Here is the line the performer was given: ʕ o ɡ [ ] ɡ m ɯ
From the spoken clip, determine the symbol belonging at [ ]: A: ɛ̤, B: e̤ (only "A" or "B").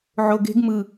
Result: B